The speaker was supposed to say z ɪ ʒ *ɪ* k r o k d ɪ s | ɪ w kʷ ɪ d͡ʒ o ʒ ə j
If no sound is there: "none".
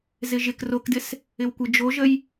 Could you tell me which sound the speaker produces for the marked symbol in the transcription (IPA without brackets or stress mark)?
ɪ